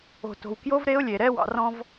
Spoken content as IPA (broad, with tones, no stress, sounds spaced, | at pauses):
o̤˨ t o̤˨ w k j o˦ v ɾ e˦ ʊ̯ lʲ e˨ ɾ ɛ˦ w ɑ̰˨ r ɔ̃˦ v